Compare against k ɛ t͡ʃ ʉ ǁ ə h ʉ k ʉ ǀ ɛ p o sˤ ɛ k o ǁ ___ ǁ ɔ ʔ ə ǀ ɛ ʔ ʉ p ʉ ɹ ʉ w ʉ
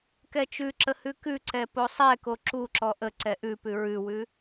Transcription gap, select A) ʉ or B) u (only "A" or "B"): B